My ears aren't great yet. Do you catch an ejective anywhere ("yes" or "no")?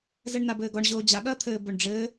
no